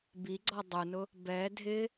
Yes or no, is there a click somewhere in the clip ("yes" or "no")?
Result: yes